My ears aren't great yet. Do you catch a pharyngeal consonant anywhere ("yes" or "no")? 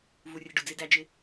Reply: no